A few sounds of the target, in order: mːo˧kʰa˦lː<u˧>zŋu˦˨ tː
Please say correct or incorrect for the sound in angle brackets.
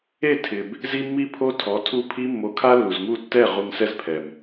incorrect